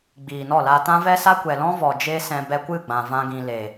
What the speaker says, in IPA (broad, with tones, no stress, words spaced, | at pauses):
ɡ͡biː˨nɔ˦˨laː˧ tã˦ vɛ˦sa˦ kʷɛ˨lɔ̃˦vɔ˨ d͡ʒeː˦sɛ̃˧ bɛ˧kʷɨ˦˨ɡ͡bã˨ vã˦ɡĩ˧ le˨